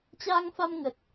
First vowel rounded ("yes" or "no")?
no